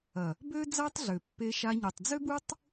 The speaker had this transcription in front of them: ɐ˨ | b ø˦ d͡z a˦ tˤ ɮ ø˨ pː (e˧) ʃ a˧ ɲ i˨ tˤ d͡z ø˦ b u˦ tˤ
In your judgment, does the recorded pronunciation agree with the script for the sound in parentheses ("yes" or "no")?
yes